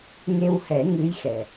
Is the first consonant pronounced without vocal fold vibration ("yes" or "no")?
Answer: no